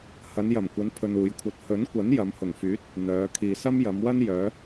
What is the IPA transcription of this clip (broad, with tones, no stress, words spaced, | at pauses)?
hɐ˨˧njɐ˨˩mkʷɐ˨˧n pʰɵ˧nuː˨˧jkʷʰɐ˧t̚ hɵ˨˥nkʷɐ˨˥n jɐ˨˧mhʊ˨˩ŋfyː˨˥t̚ | n̪œː˨˧ kʰiː˨sɐ˥mjɐ˨˧mwɐ˥n jœː˨˧